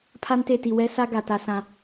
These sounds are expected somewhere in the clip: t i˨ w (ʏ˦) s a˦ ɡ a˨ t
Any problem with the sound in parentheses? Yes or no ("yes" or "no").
yes